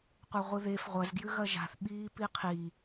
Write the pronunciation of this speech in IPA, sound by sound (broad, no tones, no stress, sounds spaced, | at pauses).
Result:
qʷ ɐ ʁʷ ɨ ð e f ʁʷ ɐ z ɡ j ʉ ɣ ɐ ʒ a̤ θ ɓ iː p i qʰ i